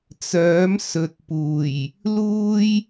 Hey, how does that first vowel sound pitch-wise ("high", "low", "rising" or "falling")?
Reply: rising